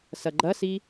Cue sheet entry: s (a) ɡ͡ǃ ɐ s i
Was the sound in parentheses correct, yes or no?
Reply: no